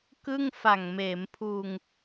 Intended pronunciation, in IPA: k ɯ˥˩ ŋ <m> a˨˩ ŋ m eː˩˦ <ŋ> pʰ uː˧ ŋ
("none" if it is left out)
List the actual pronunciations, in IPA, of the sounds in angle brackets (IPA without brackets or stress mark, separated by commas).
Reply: f, m